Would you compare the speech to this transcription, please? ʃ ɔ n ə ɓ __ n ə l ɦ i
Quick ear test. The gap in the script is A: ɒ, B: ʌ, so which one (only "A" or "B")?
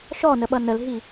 B